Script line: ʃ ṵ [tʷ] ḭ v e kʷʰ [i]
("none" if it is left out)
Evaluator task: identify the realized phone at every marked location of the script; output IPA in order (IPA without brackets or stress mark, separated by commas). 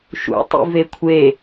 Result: tˤ, e